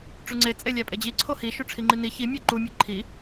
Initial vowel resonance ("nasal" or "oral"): oral